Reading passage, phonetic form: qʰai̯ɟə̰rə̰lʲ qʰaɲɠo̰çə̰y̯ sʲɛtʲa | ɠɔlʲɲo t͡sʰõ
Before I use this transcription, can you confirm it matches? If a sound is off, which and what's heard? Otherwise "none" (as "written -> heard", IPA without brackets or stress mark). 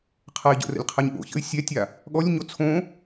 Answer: none